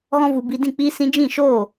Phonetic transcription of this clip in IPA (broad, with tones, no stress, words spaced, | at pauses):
ɣɔ̃˦vu˧ bi˧dĩ˦˨ k͡piː˧sĩ˧ d͡ʒĩ˦˨ʃoː˦˨